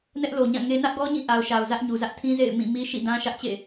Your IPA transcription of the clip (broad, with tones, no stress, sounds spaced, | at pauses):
n ɛ˦ ʔ l o˨ ɲ ã˦˨ ŋ e˦ n ä˦ ʔ ɡ ɔ˦ ɲ ĩ˦˨ ʔ a˨ ʊ̯ ʃ a˨ ʊ̯ z ä˦ ʔ ɲ u˨ z ä˦ ʔ tʰ ĩ˦ z ḛ˦˨ ɪ̯ m ĩ˦˨ m i˦ ʃ ḭ˦˨ d ã˦ ʃ ä˦ ʔ t͡ɕ ḛ˦˨